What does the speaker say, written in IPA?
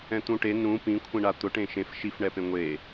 ɛ̃ t̪ ũ ʈ e n ũ p ĩ kʷʰ ĩ ɳ a t̪ ʊ ʈ ẽ ʃ ẽ f ʃ i f ɳ ɛ p ẽ ŋʷ e

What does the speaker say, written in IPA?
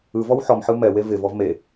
ɯ v ɔ w ħ ɔ m ħ ɯ m ɛ w e v ɪ v ɔ v m e

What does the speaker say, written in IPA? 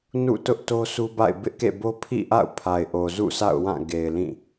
n ṵ˦˨ t ʊ˦ ʔ t o˦ s u˦ b a̰˦˨ ɪ̯ b ɪ˦ ʔ k ḛ˦˨ b o˦ pʰ ḭ˦˨ ʔ a̰˦˨ ʊ̯ pʰ a˨ ɪ̯ ʔ o˨ z ṵ˦˨ sʰ a̰˦˨ ʊ̯ w ã˦˨ ɡ e˨ ɪ̯ l ĩ˦˨

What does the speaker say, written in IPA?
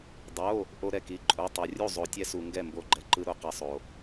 dˤ o˧˥˧ | ʔ o˥ ɾ ɛ˥˨ k i˧˥˧ ǃʼ o˧˥˧ tˤ o˧ rʲ u˥˨ zˤ o˧ tʲ ɛ˥ s u˧ ŋ ɡ ɛ˥˨ m b o˥˨ ɡ͡ǃ ɛ˧ ǃ ɯ˥ ɾ o˥ q ɛ˧ sˤ o˧

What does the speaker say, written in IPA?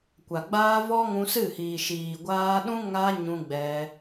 kʷ a˨ ɡ͡b aː˦ v ɔ˦ ŋ ũ˧ s ɨ˦˨ h iː˨ ʃ iː˨ ɡʷ aː˧ ɗ ũ˦ ŋ a˧ ɲ ũ˧ ɡ͡b ɛ˧

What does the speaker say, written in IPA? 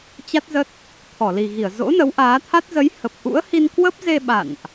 t͡ɕ a˦˥ t̚ z ə˦˥ t̚ | t̪ʰ ɔ˧˩ l i˨˩ ɣ i˧˩ ə̯ z o̰˧˥ n ə˨˦ w ʔ aː˨˦ t̪ʰ a˦˥ t̚ z ə˨˦ j h ə˨˩ p̚ ʔ ṵ˧˥ ə̯ h i˧ n k w ə˦˥ p̚ z e˧ ɓ a̰˧˨ n ʔ

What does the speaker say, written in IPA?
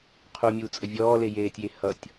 qʰ u mʲ uː t͡sʼ ə vʲ ɔː l e j eː tʲ j e h ʌ tʲ

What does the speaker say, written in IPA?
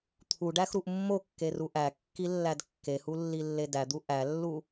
t̪ʰ u ɖ æ x ɾ u ʔ mː o kː e r u ʔ æ kː i lː æ d kː e h u lː i lː e d æ d̪ u ʔ æ lː u

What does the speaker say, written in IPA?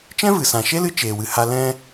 t͡ʃ ɛ̃˦ v ɨ˨ s ã˨ ʃ e˦ l ɨ˦ t͡ʃ eː˨ w ɨ˨ h a˧ l ɛ̃˧

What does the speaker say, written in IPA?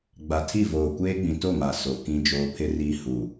ɡ͡b a˨ tʰ i˦˨ v oː˨ kʷ eː˦ ɡ͡b ĩ˨ t o˦˨ m a˨ s o˨ k ĩ˦ d͡ʒ oː˦ pʰ ɪ˦ r iː˦ h u˨

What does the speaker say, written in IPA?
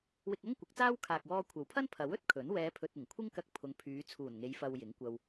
w ɪ˧ k̚ ɐ˥ ŋ kʷ ɪ˨˥ k̚ t͡s aː˥ w kʰ aː˨ k̚ w ɔː˧ kʷʰ ɐ˨ w pʰ ɐ˥ n pʰ ɐ˨˥ w ɵ˨˥ t̚ kʰ ɵ˨˥ n w ɛː˨˧ pʰ ɵ˨ t̚ ɪ˨˩ ŋ kʷʰ ɪ˥ ŋ k ɐ˧ k̚ pʰ ʊ˨˧ ŋ pʰ yː˨˧ t͡sʰ uː˨˩ n ŋ e˨˧ j f ɐ˧ w j ɪ˨˥ ŋ kʷ ɐ˧ w

